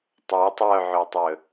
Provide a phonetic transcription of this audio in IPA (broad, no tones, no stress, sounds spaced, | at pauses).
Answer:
tˤ o tˤ œ ʕ ɵ tˤ ɵ